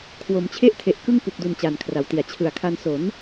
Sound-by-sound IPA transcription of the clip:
kʰ w o˩˦ m t͡ɕʰ e˥˩ ʔ tʰ e˨˩ ʔ k ɯ˥˩ ŋ p u˨˩ k̚ d u˨˩ n t͡ɕ a˨˩ n kʰ r a˩˦ w t i˩˦ a̯ t͡ɕʰ ɯ˨˩ a̯ kʰ a˧ n s o˩˦ n

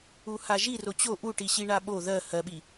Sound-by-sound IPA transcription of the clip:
u h a ʒ i r o t͡ɕ o ʔ u ʈ i ɕ i ɳ a ɓ o ð ɜ h ɜ ɓ i

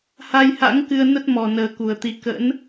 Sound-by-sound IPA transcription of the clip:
h a˧ j h a̰˧˥ ŋ k ɨ˧ ə̯ n ə˦˥ t̚ m ɔ˨˩ n əː˨˩ k u˨˩ ə̯ t̪ i˧ k ə̰˧˥ n

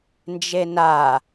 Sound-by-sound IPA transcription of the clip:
n d͡ʒ e n a

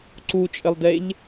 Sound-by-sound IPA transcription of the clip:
ǀ u t͡ʃʼ ɘ lˠ d e ʎ

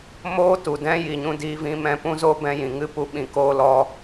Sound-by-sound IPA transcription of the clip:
m oː˦ t u˨ d ɛ̃˦ j i˨ ɲ ũ˧ d iː˧ v ĩ˧ m ɛ̃˧ p ũ˦ z o˦ b ɛ̃˧ j ĩ˨ ŋ ɨ˦ p u˧ ɓ ĩ˧ k oː˦ l ɔ˦

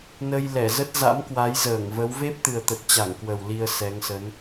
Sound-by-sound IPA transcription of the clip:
n ə˧ j l ɛ˧˩ z ə˦˥ t̚ z a̰˧˥ m k w a˨˦ j z əː˧˩ ŋ v ə˨˦ w v e˦˥ p̚ t̪ ɨ˨˩ ə̯ t̪ ə˨˩ t̚ t͡ɕ a˧˩ ŋ k w ə˨˩ w l i˧ ə̯ s ɛ˨˦ ŋ s ə˨˦ n

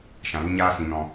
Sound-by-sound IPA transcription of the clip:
ʃ ã˨ l u˦ ɲ aː˦ s ĩ˨ n ɔ̃˨

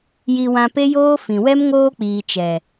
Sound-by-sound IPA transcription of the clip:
j i˧ w ã˧ p e˦ j oː˦ f ĩ˨ w ɛ˦ m ŋ oː˧ k͡p iː˨ t͡ʃ ɛ˨

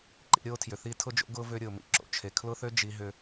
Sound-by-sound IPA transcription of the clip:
ǃ ḭ˧ ɾʲ oː˦ tʰ j ʏ˨ θ i˦ tʰ ʊ˦ d͡ʒ o̰˦ ɡ ʊː˦ v ʏː˧ ɾʲ ʊː˨ m ḭ˧ ǁ o̰˨ t͡ʃʰ e˨ kʰ l ʊ˦ θ ø˦ d͡ʒ i˧ ɦ ʏ˧

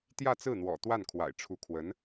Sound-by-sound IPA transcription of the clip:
t̪ j ä˥˧ t͡s ɹ̩˥˩ n̪ w ɔ̰˨˩ t̪ w a˥˩ n kʰ w a̰˨˩ ɪ̯ ʈ͡ʂʰ u˧˥ kʰ w ə˧˥ n

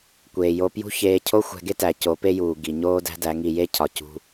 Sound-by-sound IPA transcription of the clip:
kʷ eː˨ j o˧ p j ṳ˦ ç eː˧ cʰ o˦ xʷ æ̤˧ ɡ e˦ t æ˧ c o˨˦ p e˦ j uː˨ ɡ i˨ ɲ oː˦ d æ̤˦ d æ˨˦ ŋ i˧ j e˦ cʰ ɒ˨ c ṳ˧

